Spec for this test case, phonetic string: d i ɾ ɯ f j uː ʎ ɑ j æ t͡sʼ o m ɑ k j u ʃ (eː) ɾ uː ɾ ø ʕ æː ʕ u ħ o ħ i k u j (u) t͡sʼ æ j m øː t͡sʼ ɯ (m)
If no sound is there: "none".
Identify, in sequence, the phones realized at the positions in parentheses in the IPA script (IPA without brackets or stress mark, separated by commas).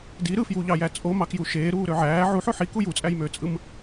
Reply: eː, u, m